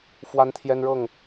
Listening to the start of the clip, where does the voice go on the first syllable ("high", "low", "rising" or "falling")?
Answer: high